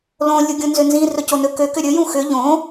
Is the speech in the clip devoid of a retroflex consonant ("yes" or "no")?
yes